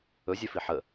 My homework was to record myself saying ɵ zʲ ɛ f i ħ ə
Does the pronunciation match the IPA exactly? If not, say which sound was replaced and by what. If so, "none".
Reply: none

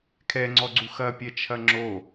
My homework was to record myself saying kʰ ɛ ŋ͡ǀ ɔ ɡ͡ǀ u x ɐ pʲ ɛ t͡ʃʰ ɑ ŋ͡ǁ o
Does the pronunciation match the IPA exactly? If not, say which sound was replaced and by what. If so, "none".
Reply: ɑ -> ɐ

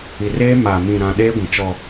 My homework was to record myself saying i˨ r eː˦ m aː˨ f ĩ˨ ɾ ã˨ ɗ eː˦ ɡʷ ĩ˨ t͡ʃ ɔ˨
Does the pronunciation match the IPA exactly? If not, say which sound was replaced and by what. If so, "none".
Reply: f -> m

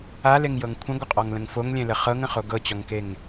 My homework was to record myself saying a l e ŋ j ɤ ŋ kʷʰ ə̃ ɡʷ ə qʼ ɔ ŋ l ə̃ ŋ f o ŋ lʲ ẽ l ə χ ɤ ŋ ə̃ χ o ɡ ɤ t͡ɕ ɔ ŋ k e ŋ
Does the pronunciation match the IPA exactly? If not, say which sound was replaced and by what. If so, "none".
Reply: none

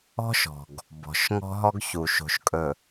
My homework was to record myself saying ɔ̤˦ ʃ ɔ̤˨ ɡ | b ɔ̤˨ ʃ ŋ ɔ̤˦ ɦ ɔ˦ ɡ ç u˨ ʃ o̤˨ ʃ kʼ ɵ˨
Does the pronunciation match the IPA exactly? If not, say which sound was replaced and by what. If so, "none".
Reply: none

